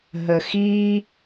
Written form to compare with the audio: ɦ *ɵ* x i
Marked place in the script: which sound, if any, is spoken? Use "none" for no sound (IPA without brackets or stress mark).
ə